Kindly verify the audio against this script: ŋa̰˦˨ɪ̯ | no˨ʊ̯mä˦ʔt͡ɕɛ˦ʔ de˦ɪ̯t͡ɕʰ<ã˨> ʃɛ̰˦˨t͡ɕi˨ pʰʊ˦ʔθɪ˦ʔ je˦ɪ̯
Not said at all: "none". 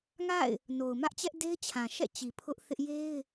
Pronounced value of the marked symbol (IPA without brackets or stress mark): ã˨